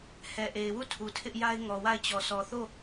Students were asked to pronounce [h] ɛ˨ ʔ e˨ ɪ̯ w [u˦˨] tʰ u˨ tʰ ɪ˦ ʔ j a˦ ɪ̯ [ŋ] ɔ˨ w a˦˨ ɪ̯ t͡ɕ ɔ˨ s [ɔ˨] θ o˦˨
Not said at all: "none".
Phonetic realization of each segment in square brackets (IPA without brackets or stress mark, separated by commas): h, u˦˨, ŋ, ɔ˨